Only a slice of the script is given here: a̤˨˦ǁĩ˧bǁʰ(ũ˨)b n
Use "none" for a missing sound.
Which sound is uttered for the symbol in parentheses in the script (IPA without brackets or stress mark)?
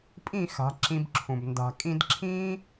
ũ˨